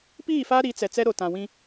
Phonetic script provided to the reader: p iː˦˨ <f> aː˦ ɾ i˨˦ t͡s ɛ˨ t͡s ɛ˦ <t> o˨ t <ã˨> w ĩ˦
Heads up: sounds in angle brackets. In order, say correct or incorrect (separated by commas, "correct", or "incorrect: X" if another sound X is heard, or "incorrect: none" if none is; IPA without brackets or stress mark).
correct, incorrect: ɾ, correct